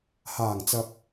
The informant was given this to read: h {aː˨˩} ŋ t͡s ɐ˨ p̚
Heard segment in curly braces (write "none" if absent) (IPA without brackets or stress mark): aː˨˩